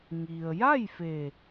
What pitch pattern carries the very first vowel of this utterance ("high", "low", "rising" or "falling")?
low